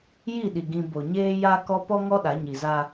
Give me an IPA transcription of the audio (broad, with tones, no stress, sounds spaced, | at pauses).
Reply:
j i˦˨ ɗ i˨ ɡ ĩ˨ b o˨ ɲ eː˦ j a˦ k ɔ˦ p ɔ˦ ŋ ɔ˦ ɗ a˨˦ ɲ i˨ z a˦